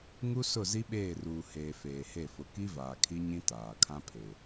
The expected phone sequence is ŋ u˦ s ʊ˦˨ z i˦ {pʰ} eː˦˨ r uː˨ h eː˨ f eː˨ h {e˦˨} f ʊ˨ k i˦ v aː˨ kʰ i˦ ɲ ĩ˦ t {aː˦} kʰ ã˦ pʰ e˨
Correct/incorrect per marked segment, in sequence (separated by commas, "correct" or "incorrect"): incorrect, correct, incorrect